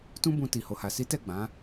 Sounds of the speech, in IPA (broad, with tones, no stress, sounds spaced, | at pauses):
t ũ˦ b ũ˧ t i˨ h o˨ h a˨ s i˨˦ t ɛ˦˨ ɡ͡b ã˨˦